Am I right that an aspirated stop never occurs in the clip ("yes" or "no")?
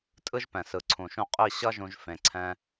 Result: no